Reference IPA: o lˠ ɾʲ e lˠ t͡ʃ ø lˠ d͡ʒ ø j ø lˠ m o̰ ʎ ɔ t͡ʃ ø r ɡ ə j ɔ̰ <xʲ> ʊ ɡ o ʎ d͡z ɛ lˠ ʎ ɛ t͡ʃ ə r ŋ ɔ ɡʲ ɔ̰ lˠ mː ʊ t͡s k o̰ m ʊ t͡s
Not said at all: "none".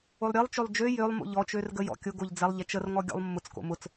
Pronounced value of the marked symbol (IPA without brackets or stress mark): kʲ